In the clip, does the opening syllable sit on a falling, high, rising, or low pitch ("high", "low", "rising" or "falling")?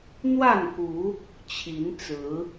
falling